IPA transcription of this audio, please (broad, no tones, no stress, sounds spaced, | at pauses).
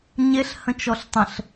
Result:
ɲ e ɬ h ə̃ t͡ʃ ɔ ɬ tˤ ə̃ ɬ